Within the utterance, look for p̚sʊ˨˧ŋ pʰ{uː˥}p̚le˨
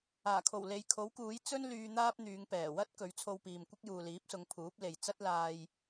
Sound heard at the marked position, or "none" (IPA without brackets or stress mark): uː˨˥